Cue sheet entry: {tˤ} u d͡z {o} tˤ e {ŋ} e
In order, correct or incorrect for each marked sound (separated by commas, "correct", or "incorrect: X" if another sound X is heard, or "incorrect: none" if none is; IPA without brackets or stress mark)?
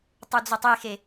correct, correct, incorrect: x